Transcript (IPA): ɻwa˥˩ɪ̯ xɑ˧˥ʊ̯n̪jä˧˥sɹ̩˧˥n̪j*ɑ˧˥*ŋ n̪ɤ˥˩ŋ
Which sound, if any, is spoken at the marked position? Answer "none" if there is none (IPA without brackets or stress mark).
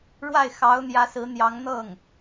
ɑ˧˥